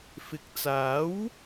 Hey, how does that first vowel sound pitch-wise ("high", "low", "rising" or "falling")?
rising